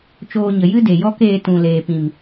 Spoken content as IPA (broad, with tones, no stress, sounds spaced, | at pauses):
t͡ʃ oː˧ ɲ ə˨ j ɨ˦ d e˨ j ɔ˦ k eː˧ t ũ˨ l eː˨ p ĩ˨ m